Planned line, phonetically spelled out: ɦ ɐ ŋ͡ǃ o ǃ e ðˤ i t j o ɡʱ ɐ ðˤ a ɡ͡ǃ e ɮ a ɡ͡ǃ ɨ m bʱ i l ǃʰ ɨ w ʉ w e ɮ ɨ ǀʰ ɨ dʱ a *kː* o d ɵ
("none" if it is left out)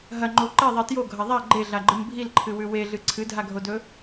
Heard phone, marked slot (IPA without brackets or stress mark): ɡʱ